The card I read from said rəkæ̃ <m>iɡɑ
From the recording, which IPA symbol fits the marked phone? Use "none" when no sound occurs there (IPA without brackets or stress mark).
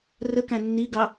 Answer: nː